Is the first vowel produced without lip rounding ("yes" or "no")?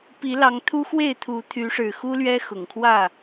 yes